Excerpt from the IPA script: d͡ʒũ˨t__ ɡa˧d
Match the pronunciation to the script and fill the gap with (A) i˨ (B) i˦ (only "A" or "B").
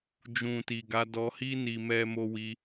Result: A